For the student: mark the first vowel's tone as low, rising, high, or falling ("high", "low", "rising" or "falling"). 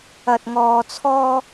low